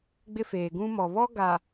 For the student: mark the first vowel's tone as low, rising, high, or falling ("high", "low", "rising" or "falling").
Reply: high